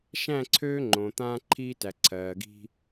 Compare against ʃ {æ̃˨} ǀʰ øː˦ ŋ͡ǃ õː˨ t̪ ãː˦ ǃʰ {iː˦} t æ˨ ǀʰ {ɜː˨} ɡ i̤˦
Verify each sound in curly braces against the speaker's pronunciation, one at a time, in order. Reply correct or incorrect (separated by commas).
incorrect, correct, correct